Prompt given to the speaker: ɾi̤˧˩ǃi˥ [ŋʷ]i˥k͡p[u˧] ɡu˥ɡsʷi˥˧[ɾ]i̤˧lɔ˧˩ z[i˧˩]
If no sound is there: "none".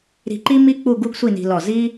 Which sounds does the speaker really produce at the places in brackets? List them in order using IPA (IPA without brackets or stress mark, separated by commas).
m, u˥˧, n, i˥